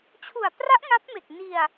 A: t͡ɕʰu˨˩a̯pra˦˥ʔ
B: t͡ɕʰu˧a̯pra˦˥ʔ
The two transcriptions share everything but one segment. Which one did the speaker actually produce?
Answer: A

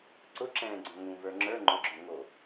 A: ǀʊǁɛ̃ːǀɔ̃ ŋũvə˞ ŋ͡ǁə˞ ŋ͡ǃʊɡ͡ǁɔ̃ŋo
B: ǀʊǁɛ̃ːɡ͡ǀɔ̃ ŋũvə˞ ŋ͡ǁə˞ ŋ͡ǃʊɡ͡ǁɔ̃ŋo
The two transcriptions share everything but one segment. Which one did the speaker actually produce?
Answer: B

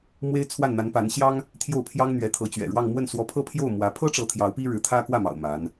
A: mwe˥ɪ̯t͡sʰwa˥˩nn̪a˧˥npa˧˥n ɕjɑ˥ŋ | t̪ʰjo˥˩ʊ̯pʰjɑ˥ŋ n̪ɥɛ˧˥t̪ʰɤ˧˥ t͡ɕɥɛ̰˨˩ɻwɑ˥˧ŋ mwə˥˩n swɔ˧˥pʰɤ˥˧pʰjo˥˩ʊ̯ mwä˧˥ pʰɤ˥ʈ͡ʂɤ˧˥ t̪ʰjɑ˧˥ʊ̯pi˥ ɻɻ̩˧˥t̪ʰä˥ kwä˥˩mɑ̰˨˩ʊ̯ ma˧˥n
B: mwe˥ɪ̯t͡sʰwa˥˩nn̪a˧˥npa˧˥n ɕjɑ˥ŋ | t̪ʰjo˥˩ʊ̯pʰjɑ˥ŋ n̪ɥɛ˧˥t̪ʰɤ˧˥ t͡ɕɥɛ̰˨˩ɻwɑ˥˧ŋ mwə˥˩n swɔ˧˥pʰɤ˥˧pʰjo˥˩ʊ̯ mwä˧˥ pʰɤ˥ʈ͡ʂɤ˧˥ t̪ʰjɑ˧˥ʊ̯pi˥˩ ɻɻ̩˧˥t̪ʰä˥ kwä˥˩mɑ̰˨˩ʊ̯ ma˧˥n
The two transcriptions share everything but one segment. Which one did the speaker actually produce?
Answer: A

